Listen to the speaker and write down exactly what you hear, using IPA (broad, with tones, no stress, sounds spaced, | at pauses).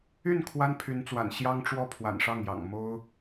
y˥˩ n kʰ w a˥ n pʰ y˧˥ n t͡s w a̰˨˩ n ɕ j ɑ˥ ŋ ʈ͡ʂ w ɔ˥˩ pʰ w a̰˨˩ n ʂ ɑ˥˩ ŋ j ɑ̰˨˩ ŋ m o˥ ʊ̯